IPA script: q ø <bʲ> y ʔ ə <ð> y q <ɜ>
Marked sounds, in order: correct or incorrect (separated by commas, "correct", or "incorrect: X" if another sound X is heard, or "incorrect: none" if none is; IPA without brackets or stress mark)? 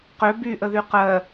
incorrect: b, correct, correct